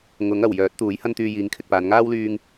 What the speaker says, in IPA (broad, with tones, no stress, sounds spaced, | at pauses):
ŋ ʊ˨˥ ŋ ɐ˨˩ w j œː˨˥ t̚ t̪ uː˨˥ j h ɐ˥ n t̪ yː˧ j iː˨˥ ŋ kʰ ɪ˨ k̚ p aː˨˧ n ŋ aː˥ w l yː˧ ŋ